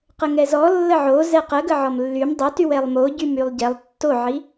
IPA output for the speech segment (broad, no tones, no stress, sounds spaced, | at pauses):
q ə ŋ ɛ z ɔ lː ə ʕ o z ɛ q ə ɡ ə ʕ ɔ m lː y m dˤ o t y w ɛ lˠ m o ɟ y m y lˠ ɟ ɛ lˠ tː o ʕ i